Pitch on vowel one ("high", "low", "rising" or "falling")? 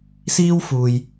high